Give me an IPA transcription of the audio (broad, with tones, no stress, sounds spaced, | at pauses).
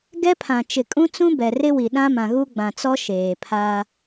ɡ ɛ˦ pʰ ã˨ t͡ʃ ɪ˨ kʼ ũ˦ t͡s ũ˦ b ɛ˨ r ɪ˦ w i˨ ɗ ã˦ m ã˨ ɣ u˦ ɡ͡b ã˨ t͡s ɔ˦ ʃ eː˨ pʰ aː˦